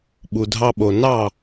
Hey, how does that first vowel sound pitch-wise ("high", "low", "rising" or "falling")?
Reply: low